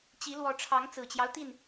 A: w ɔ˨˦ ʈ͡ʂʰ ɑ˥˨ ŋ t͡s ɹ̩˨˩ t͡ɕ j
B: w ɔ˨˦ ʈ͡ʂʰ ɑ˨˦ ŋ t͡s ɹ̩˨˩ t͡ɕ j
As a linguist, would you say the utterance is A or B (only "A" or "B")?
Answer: B